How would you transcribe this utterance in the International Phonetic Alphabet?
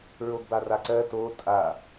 ɹ o ɡ b a r a ǀ ɜ t o tʼ a

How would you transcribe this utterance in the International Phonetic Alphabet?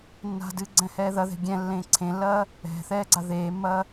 nː a̤ d ɨ ɡ͡ǀ ɛ̃ h ɛː ð ɐ ð ɛ̤ ɡʲ ɛ̃ lː ẽː ǀʰ ẽ lː ɐː | ɛ̤ θ ɛː ɡ͡ǀ a ð eː mː ɐː

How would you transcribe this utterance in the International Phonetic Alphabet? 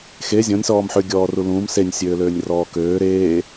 x e zʲ ɔ̃ nʲ s ɔː m ħ ʏ ɡʲ ɔː r u l ũː m s e nʲ sʲ øː l øː nʲ r ɔː k øː ɾ eː

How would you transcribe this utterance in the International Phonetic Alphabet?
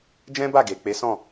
d͡ʒ ɛ̃˦ b a˦˨ ɡ e˨ k͡p e˨˦ s ɔ̃˦˨

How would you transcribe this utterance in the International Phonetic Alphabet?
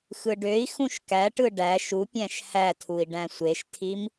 x ɯ ɖ ø i̯ x ũ ʃ k æ ʈ ɯ ɖ æ ʃ u pʲ æ̃ ʃ h æ tʰ u i̯ ɖ æ̃ sʷ e ʃ tʰ i m

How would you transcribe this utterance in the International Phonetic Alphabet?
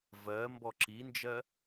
v ɜ m b ɔ ǁ i n d͡ʒ ɜ

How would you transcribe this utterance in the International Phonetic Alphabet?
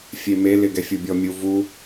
fʲ e m e l ɪ ɡ ɛ fʲ u bʲ ɔ mʲ u v u

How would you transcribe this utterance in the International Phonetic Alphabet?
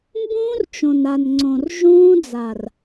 m b ũː˦ r t͡ʃ õ˨ n a˨ n ŋ͡ǀ õ˨ r ʒ ũː˦ d͡z a˨ r

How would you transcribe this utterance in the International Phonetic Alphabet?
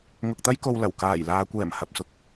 ŋ ʊ˧ k̚ t̪ ɐ˥ j k o˧ w l ɐ˨˩ w k aː˨˩ j l aː˨ kʷ ɛː˨˩ m h ɐ˨ p̚ s ʊ˧ k̚

